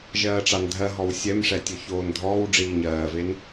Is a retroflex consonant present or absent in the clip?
present